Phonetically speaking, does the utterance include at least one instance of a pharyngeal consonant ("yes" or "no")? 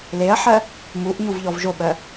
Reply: yes